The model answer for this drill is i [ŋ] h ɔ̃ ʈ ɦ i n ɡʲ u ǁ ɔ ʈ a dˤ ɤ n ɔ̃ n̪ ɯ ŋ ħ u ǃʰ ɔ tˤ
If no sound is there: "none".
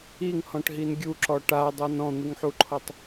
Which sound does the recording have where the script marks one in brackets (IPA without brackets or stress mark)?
ŋ